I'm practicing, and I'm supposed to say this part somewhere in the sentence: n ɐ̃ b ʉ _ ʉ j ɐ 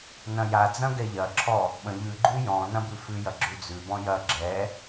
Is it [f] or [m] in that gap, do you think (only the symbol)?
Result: f